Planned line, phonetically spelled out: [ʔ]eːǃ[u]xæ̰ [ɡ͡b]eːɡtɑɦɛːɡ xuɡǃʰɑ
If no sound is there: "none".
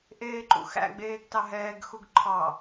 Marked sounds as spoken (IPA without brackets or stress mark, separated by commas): ʔ, ṵ, ɡ͡b